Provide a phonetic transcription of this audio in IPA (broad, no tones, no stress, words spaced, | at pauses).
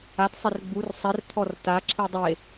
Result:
atsˤer ɡ͡bur sˤɛr t̪ʰɔrta ǁʰidˤe